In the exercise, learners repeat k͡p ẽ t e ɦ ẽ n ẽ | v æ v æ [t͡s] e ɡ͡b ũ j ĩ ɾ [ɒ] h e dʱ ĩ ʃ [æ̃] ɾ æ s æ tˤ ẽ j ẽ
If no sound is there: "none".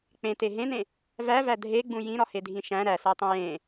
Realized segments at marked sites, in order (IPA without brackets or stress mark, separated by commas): dʱ, ɒ, æ̃